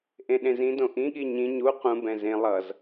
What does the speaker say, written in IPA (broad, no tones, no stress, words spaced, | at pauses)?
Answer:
ʔẽɗẽzĩdõ ʔĩɠi ɲĩ ɲu qũbɛ̃ zẽ lˠʌz